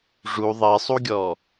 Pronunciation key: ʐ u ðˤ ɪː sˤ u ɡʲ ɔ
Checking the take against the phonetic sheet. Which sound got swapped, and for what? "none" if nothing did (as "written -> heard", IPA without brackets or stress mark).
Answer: none